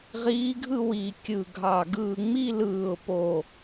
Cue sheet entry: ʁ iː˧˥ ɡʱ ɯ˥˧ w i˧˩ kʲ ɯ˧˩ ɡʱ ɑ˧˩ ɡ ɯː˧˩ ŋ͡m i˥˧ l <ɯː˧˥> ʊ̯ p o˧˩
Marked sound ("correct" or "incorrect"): incorrect